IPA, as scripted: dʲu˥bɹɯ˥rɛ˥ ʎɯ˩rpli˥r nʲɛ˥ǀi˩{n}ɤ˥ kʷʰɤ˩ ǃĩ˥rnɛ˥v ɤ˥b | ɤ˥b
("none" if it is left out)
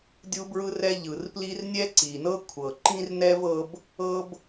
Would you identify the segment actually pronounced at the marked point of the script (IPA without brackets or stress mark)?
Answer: n